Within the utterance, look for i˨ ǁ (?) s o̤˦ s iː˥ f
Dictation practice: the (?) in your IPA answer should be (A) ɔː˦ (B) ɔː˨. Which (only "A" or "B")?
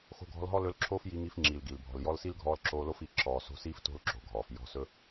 B